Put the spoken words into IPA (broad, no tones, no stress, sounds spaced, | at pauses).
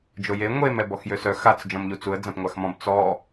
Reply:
d͡ʒ o j e ŋʷ e m ɛ b ɔ x j ø s œ x a t͡s d͡ʒ ɔ̃ m ʎ u t͡s u ə̯ d͡z ã p ŋʷ a x m ɔ̃ b t͡s ɔ